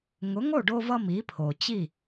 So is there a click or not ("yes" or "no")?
no